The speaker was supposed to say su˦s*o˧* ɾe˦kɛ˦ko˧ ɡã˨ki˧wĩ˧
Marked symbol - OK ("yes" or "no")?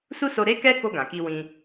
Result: yes